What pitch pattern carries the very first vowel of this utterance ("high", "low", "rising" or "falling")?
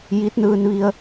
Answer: rising